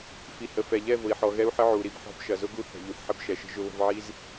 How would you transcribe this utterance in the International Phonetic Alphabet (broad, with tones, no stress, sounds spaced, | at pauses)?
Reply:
f i˨ h ə˨ f ɛ˨ ʎ ɛ˦˨ v ʊ˨ i̯ ħ ɔ˨ ɣ ɛ˦ u̯ ħ ə˦ ʕ u˨ ɾ i˨ b ħ ɔ̤˦ b ʃ ɐ˨ z ʊ˦ ɡ u˦ θ ə̤˨ ʎ u˨ θ ħ ə˦ b ʃ ɛ˨ ʃ ə̤˦ ʒ ʊ˨ β ə̤˨ v ʕ i˦ z